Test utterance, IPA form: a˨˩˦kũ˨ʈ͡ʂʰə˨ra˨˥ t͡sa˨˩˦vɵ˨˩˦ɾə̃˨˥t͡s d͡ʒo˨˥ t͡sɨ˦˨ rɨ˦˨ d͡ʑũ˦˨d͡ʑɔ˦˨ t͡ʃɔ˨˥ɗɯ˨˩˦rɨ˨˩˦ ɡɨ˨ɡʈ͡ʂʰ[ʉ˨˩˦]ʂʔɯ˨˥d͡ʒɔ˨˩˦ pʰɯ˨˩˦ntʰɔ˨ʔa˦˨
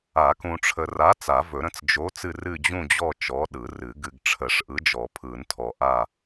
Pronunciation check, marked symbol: incorrect: ə˨˩˦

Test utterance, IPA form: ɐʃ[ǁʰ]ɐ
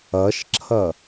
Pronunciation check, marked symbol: correct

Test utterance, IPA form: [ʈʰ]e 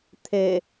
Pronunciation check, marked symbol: incorrect: t̪ʰ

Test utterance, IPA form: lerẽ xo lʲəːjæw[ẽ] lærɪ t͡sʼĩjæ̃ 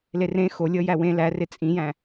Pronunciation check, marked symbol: correct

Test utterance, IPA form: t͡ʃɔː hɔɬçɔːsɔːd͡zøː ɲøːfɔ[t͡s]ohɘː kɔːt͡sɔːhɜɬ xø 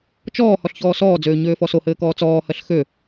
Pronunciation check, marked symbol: incorrect: s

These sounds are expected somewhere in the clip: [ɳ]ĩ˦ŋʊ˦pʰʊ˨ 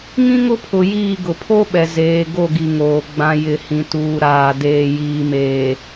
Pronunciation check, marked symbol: incorrect: ŋ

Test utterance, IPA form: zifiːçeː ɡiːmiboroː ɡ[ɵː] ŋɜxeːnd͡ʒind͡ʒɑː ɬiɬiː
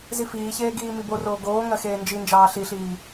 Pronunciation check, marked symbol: incorrect: oː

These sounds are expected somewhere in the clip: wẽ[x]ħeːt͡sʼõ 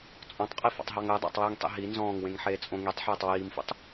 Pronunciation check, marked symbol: incorrect: ŋ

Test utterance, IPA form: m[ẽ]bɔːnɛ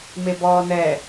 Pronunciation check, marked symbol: incorrect: e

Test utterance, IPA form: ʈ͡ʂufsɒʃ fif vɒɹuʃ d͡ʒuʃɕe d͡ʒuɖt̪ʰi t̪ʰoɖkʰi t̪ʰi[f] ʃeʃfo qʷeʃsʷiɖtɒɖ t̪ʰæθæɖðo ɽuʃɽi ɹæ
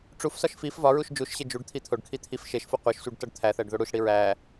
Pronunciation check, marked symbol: correct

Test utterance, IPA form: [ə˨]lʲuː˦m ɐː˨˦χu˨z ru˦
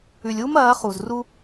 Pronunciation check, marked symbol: incorrect: ʉ˨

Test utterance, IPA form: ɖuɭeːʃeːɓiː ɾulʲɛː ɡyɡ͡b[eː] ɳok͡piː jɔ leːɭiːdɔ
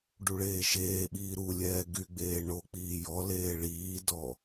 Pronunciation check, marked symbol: correct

